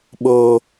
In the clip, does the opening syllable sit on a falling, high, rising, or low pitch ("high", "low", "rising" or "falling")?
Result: low